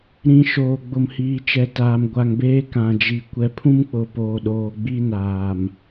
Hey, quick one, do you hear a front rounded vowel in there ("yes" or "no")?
no